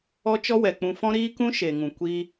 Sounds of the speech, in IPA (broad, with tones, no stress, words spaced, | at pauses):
ɔ˦t͡ʃɔ˦wɛ˨k͡pũ˧ fɔ̃˦ɾiː˦kũ˦ ʃe˨ŋũ˨ kʷi˦